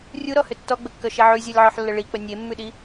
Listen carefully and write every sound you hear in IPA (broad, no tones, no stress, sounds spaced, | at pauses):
rʲ u ɾ ɔ h ʏ tː ɔ ɡ͡b ə kː œ ʃ e ʕ ʉ zʲ ɔ lʲ ʕ ɔ ħ lː ə ɭ i k͡p ə nʲ e mː ʉ ɗ i